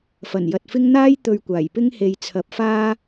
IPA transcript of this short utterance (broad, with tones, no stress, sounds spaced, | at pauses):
f ɐ˨˩ n j ɐ˨ t̚ f ɪ˥ ŋ n̪ aː˥ j t̪ ɵ˧ ɥ kʷ aː˨˩ j p ɪ˥ ŋ h e˨ j t͡sʰ ɐ˨˥ p̚ f aː˥